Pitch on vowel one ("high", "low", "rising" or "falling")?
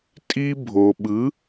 high